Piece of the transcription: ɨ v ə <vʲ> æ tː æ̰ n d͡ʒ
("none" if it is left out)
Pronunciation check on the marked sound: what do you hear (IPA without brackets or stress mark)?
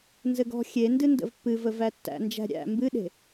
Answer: v